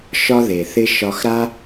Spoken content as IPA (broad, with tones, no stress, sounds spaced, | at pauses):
ʃ ɒ˧ ð e˩ θ ɪ˧ ʃ ɒ˧ x ɾ a˥